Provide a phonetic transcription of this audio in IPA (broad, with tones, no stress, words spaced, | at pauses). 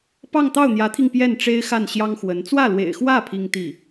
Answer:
pɑ˥˧ŋt̪ɑ˥˩ʊ̯n̪jä˧˥t̪ʰi˧ŋ pjɛ˥˩nʈ͡ʂe˥ɪ̯ xa˥˩nɕjɑ˥ŋxwə˧˥n t͡swä˥˩lwḛ˨˩ɪ̯xwä˥˩ pʰi˥ŋt̪i˥˩